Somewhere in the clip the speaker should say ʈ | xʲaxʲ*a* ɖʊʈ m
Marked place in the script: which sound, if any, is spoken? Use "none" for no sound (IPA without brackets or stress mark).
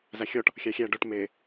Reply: æ